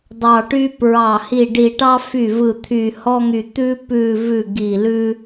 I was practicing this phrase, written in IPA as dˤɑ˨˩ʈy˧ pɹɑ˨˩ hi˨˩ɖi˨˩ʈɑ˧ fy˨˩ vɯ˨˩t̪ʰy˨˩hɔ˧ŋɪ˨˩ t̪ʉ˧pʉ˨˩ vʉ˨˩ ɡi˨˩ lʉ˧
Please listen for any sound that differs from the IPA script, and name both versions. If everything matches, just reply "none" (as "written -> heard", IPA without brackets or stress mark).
ɪ˨˩ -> y˨˩